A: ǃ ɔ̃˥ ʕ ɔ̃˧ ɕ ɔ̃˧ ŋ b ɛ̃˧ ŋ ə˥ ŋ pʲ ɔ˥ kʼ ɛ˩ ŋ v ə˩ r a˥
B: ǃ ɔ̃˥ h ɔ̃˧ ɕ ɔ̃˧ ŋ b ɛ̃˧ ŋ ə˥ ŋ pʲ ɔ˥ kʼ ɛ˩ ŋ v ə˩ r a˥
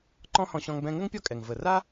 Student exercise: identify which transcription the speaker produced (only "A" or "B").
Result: B